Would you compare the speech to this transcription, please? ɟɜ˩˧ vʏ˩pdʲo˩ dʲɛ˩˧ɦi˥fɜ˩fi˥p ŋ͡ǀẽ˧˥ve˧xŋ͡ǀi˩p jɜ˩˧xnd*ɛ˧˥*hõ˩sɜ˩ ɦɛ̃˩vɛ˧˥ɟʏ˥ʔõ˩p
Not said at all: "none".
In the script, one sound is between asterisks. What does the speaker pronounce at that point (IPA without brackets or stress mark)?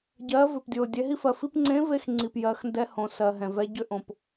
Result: ɛ˧˥